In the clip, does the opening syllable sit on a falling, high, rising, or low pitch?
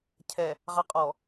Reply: low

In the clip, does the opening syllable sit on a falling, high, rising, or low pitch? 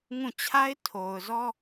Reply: falling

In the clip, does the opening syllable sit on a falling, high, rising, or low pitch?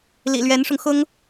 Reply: low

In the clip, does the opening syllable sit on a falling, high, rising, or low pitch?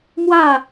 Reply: falling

